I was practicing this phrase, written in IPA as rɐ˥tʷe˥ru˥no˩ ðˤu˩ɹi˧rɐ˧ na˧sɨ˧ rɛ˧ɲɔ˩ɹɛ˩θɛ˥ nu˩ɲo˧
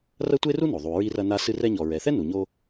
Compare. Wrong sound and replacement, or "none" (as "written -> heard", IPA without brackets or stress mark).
none